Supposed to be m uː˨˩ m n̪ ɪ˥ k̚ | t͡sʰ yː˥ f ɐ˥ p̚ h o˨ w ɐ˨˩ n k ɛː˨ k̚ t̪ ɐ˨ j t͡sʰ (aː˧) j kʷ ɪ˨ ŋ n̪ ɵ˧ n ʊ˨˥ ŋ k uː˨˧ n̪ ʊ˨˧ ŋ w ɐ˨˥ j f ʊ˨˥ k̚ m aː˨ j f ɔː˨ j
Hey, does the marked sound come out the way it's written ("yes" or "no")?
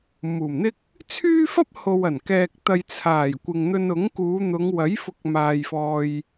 no